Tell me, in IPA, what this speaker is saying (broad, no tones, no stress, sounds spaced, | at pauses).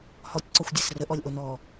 h ɔ tʲ ǀ ɒ xʷ dʲ ɛ s r ə ʔ ɔ lʲ ʔ o n ɔ